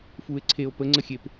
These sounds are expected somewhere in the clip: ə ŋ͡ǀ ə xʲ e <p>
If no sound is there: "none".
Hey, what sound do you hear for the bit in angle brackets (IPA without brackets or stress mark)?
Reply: p